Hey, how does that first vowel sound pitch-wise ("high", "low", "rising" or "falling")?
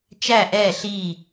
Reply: falling